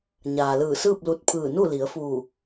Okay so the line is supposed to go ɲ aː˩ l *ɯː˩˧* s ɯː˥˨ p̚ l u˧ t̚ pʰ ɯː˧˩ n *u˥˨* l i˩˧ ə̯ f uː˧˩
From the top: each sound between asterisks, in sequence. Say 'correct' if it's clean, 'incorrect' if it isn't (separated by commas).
incorrect, correct